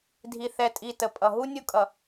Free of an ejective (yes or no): no